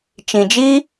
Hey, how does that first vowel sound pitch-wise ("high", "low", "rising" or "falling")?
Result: low